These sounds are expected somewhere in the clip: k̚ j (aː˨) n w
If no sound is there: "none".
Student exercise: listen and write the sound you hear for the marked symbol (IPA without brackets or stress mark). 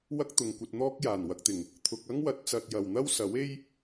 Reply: aː˨˩